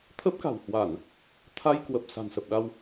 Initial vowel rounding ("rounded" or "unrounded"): unrounded